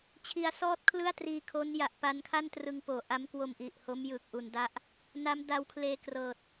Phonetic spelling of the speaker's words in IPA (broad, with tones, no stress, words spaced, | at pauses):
t͡ɕʰi˧a̯sɔː˥˩t̚kʰlɯ˥˩a̯ triː˧kʰo˦˥n ja˨˩ʔpa˧nkʰa˥˩n trɯ˧ŋpoː˨˩ ʔa˦˥mkwo˧m ʔi˨˩ʔ ho˦˥mjɯː˨˩k̚ ʔu˧nda˥˩ʔ | na˦˥mda˧wkʰleː˧ krɤː˨˩t̚